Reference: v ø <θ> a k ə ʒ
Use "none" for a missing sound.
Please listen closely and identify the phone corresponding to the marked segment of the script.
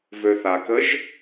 θ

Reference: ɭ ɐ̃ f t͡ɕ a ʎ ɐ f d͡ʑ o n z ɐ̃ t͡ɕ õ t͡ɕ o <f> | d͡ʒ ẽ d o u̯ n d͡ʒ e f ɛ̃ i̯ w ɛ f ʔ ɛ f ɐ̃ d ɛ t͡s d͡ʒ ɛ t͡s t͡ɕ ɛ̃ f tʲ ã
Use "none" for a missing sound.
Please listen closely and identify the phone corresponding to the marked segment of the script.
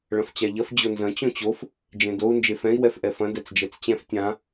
f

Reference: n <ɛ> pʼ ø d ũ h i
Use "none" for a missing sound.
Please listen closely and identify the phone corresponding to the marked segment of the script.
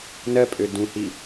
ɜ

